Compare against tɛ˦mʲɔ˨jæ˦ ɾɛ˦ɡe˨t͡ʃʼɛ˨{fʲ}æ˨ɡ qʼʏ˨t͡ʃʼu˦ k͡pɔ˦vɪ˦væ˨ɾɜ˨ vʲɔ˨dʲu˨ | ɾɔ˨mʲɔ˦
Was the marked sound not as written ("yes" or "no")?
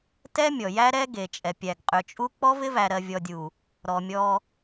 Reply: yes